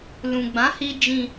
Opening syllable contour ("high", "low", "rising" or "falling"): low